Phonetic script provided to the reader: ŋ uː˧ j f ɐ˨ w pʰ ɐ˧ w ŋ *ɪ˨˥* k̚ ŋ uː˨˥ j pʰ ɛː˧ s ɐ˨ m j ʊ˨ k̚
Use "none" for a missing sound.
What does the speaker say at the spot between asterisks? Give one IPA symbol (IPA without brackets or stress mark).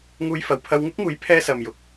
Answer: ɪ˥